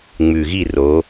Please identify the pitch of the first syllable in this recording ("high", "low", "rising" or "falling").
low